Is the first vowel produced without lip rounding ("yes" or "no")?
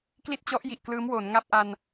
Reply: yes